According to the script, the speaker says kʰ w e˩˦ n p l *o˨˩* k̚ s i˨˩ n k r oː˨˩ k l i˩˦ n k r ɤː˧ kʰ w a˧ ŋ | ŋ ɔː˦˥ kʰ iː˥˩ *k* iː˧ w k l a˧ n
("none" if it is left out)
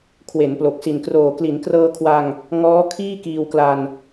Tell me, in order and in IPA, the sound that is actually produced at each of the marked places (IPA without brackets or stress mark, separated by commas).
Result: o˨˩, k